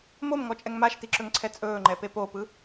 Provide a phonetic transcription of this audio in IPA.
m o m ŋ ɔ t͡ʃʼ ɛ ŋ m a ʃ t i ǁ ɵ ŋ ǀʰ ɛ t͡sʼ ɵː ŋ͡ǃ ɛ p e p o p ɯ

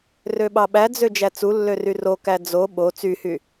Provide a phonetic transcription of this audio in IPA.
r ø ɓ ɑ ɓ æ d͡z ø d͡ʒ æ t͡s u lː ø r y r o k æ d͡z o ɓ o t͡s y h y

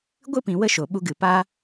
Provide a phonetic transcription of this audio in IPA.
ɡʷ ɨ˦ p ĩ˨ w ə˧ ʃ o˨ ɓ u˧ ɡ ɨ˨ p aː˧

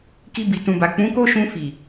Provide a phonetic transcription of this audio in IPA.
k i˧ b i˨ t ũ˨ b a˨ k͡p ũ˨˦ k o˦ ʃ ũ˧ f i˨

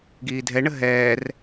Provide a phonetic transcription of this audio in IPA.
ɡ iː dʱ ɛ ɳ ə ɦ ɛː r

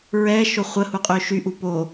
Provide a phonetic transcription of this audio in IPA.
ɹ ɛ ʃ o χʷ ə h u qʼ ø ʃ y ʔ u p o

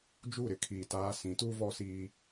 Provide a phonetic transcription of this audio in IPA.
d͡ʒ u˦˨ ɾ ɪ˦ kʰ iː˨ t aː˦ s ĩ˨˦ t u˦ v ɔ˦ s iː˦

